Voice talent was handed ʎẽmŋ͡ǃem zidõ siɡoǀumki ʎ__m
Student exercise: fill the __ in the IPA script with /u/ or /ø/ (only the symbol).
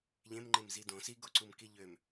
ø